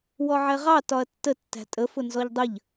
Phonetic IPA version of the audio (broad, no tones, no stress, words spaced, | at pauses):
wɔʕɛʁɑ tɒɐ̯tːə tːæ̤tʼə fʊnzɔʎdˤəʎ